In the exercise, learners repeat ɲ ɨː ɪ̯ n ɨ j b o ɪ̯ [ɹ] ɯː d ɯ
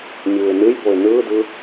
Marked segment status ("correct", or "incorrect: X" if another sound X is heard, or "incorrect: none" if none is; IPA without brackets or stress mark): incorrect: n